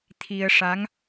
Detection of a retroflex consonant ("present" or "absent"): present